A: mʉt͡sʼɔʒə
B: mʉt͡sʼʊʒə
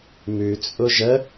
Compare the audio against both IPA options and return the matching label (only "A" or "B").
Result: B